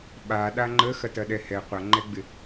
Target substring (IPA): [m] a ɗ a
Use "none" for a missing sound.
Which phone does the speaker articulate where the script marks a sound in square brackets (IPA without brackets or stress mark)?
ɓ